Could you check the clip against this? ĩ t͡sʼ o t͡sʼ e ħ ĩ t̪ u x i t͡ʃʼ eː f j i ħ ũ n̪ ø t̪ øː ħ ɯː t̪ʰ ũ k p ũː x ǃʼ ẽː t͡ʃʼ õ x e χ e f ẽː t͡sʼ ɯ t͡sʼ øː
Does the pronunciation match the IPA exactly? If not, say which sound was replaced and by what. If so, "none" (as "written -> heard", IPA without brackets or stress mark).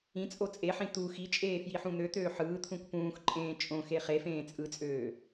none